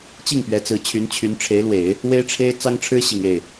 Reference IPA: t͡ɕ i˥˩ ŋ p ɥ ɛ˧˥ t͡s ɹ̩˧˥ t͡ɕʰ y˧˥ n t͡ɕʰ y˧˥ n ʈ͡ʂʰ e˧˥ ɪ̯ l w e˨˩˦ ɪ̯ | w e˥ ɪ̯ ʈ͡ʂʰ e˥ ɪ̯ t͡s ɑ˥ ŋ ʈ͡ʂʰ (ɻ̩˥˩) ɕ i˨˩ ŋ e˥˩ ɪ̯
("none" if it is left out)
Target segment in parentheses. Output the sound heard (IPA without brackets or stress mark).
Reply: ɻ̩˥